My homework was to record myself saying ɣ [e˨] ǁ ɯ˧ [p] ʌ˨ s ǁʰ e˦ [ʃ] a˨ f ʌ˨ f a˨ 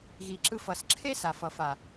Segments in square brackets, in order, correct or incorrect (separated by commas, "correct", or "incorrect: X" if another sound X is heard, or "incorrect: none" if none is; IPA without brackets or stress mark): incorrect: i˨, incorrect: f, incorrect: s